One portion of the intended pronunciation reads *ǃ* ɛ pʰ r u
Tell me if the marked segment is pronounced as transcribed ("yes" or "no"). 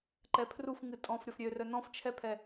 yes